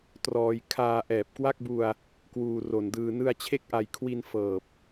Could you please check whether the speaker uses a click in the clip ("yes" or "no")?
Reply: no